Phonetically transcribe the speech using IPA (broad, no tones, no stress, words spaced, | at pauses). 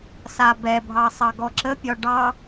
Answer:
sabɛbʱɑ sˤɑɡɔǁəpʲɒ ɖɑ